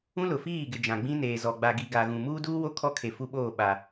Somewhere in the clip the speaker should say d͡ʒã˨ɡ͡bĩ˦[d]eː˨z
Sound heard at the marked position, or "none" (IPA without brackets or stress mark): n